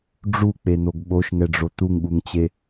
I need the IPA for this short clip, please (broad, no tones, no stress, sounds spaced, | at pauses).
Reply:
ɖ͡ʐ u k͡p e n̪ o ɡ ɓ o ʃ ŋ ɛ ɖ͡ʐ o t̪ u ŋ ɠ u ŋ t͡ɕ e